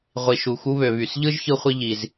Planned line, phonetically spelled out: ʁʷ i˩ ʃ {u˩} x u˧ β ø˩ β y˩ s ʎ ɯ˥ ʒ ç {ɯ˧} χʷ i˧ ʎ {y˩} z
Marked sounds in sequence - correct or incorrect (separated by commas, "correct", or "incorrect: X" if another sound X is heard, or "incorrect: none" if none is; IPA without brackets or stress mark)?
correct, correct, incorrect: i˩